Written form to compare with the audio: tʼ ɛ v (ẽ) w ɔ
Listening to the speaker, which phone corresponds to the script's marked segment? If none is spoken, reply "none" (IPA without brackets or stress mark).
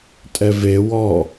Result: e